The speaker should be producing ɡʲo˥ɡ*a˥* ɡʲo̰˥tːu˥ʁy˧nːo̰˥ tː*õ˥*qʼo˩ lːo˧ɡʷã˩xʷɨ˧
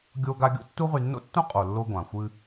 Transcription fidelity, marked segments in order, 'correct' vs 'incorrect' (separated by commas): correct, correct